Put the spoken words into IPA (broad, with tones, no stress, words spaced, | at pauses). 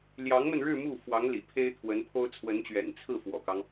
ljɑ˧˥ŋmə˧nɻɻ̩˥˧ mu˥˩ fwɑ˧˥ŋlḭ˨˩ pʰe˥ɪ̯t̪ʰwə˧˥npʰo˥ʊ̯ t͡sʰwə˧˥nt͡ɕɥɛ̰˨˩n t͡sʰɹ̩˥˩ fwɔ̰˨˩kɑ˦ŋ